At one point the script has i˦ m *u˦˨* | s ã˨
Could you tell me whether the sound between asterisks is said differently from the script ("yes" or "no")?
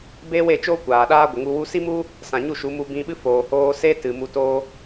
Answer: yes